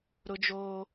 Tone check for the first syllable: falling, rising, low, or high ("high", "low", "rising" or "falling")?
high